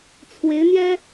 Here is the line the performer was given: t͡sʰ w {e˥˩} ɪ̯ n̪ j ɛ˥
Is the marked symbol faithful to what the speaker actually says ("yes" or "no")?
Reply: no